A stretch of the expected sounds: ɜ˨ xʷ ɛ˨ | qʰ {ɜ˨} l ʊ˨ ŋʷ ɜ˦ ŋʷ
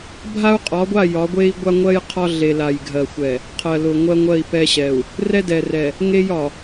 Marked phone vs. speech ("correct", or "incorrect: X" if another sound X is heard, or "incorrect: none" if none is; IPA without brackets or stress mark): correct